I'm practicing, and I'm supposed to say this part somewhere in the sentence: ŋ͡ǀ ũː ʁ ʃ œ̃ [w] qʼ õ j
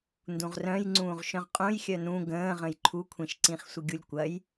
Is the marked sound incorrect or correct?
incorrect